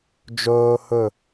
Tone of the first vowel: high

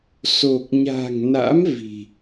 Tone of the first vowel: low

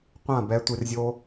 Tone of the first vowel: falling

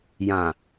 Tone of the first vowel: low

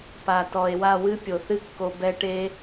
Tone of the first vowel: low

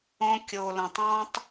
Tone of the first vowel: high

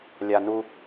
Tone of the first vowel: high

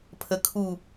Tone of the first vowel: low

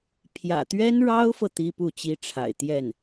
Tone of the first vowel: low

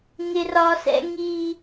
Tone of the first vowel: high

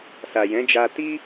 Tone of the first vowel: low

